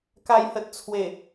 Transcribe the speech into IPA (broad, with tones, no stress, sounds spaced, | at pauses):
k a˨˩ j h ə˨ t̚ t͡sʰ w e˨˩